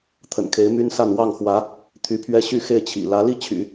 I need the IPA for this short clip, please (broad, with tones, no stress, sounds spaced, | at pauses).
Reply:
t̪ʰ ə̰˨˩ n kʰ e˧˥ ɪ̯ m y˥ n s a˥˧ n w ɑ˥˩ ŋ x w ä˧˥ | t̪ʰ y˧˥ pʰ ɥ ɛ˥ ɕ y˥˧ x e˥˩ ɪ̯ t͡ɕʰ ḭ˨˩ l ä˧˥ l i˥˩ t͡ɕʰ y̰˨˩˦